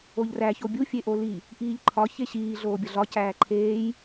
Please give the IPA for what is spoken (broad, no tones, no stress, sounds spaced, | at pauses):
o ʎ r æ ç o bʲ u fʲ e ʔ o l i | ʔ iː ʎ ǃʰ ɒ ç e ɕ iː ɮ oː bʲ ɒ ɮ ɒ c æː ǃʰ eː j